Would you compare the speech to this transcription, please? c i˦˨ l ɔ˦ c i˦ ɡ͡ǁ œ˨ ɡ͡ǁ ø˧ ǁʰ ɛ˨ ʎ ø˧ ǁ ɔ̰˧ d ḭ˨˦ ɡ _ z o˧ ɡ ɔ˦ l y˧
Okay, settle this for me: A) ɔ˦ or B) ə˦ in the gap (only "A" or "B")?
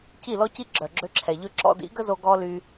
B